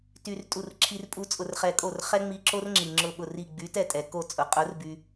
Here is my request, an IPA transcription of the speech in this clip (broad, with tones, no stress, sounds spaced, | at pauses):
t y˧ r tʼ u˧˩ r ǁʰ i˧ r pʼ u˧ t͡sʼ ʊ˧ r χ ɛ˧ kʼ o˥˩ r χ ɛ˥ ŋ͡m i˧ ǁ o˥ r ŋ͡ǁ i˩ ŋ͡ǁ ʊ˧˩ ɓ ʊ˧˩ r i˧˩ ɡ͡b y˨˥ t ɛ˥˩ tʼ ɛ˩ k o˥˩ t͡sʼ ʊ˩ qʼ ʊ˨˥ r b y˧